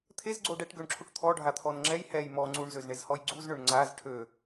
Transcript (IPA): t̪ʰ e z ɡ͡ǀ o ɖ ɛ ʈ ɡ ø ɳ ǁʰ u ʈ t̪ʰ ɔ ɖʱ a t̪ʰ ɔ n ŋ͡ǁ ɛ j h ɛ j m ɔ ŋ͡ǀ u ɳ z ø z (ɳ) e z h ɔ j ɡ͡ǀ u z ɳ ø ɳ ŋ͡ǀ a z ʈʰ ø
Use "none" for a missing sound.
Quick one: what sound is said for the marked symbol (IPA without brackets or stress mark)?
ɳ